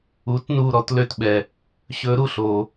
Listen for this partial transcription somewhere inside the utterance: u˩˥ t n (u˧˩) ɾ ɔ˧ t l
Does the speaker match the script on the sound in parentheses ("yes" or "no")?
yes